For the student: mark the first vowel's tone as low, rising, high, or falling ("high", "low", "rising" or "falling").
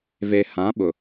low